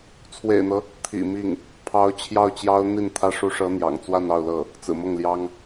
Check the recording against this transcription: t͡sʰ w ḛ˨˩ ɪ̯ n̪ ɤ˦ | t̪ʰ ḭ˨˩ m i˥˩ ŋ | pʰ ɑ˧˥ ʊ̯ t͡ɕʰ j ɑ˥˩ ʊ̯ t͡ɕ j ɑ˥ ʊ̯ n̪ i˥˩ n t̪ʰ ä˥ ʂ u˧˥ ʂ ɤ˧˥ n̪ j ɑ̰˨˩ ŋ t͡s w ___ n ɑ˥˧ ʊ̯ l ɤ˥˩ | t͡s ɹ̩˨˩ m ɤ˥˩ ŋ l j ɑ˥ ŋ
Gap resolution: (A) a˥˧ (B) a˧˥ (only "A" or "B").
A